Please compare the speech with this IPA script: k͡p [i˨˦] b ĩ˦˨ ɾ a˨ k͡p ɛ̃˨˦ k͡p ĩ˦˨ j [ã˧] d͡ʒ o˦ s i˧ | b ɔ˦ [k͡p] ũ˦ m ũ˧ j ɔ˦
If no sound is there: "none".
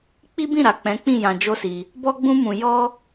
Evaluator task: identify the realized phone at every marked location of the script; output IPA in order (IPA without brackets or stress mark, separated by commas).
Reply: i˦, ã˧, ɡ͡b